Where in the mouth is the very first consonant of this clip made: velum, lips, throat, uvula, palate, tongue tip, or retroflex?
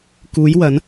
velum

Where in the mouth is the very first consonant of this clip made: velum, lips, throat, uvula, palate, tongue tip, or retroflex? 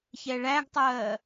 palate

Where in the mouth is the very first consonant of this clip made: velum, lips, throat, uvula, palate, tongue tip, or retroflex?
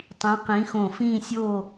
tongue tip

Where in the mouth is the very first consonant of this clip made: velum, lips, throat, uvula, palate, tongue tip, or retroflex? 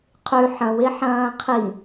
uvula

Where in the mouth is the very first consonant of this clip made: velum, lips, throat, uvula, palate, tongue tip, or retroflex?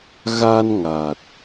velum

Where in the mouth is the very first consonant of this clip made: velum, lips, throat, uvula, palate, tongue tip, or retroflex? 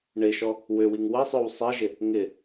retroflex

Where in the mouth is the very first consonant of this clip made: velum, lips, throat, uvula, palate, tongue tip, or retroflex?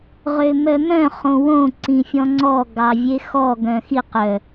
uvula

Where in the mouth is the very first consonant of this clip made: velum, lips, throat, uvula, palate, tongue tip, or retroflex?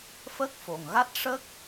lips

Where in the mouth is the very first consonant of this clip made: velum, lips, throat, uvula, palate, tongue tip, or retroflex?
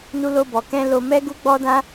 tongue tip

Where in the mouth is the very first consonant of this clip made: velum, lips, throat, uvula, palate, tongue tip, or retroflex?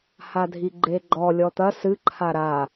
throat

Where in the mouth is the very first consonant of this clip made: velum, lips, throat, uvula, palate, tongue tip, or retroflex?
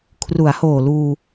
velum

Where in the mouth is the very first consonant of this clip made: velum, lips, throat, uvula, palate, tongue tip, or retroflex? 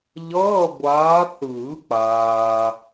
palate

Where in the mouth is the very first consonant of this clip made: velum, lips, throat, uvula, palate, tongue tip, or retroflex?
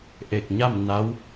throat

